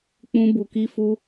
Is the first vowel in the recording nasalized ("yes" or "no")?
yes